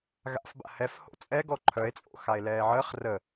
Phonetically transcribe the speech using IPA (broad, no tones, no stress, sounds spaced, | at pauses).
ɣ a̰ f b a̰ h ɛ f h o̰ t͡sʼ ɛ ɡ ɔ ǃʰ œ e̯ t͡sʼ o̰ x a e̯ l ɛː ʕ əː χ r ə